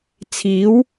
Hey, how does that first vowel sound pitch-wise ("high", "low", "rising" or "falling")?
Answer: rising